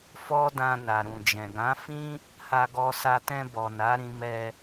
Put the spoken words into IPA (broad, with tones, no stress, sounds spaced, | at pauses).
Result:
f ɔ˦ d ã˧ n a˨ ɾ ũ˨ d͡ʒ ɛ̃˨ ɡ ã˨˦ f ĩ˦ | h a˧ ɡ ɔ˧ s a˧ t ɛ̃˧ b ɔ˨ n a˨˦ ɾ ĩ˧ m ɛ˧